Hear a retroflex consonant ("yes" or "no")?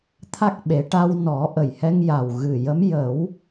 yes